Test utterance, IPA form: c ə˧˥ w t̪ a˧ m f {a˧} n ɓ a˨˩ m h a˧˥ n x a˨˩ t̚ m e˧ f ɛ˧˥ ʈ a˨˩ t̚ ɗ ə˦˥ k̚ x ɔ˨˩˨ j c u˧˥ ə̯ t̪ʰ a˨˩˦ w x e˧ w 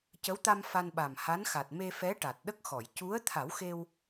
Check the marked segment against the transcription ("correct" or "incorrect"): correct